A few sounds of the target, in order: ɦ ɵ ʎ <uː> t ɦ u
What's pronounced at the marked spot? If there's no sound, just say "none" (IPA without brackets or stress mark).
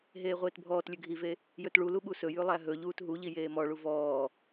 uː